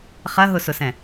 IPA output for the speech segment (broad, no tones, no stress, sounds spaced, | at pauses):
χ ɐ ɦ ʊ s ʊ s ɛ̃